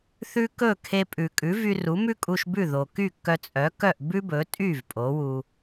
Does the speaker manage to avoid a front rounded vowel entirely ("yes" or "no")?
no